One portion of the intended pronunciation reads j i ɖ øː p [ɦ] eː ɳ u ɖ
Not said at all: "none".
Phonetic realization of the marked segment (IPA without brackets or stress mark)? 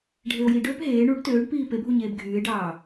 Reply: ɦ